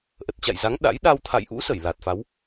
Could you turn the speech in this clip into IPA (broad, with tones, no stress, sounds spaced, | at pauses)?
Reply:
ʔ ə˨˩ t̚ t͡ɕ a̰˧˨ j z a˨˦ ŋ ɗ a̰˧˥ j ɗ a˧ w t̪ʰ a̰˧˨ j ʔ ṵ˧˥ s ə˧˩ j l a˨˩ t̚ f a˨˦ w